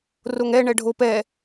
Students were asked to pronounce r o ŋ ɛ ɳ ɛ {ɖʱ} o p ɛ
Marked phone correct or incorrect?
correct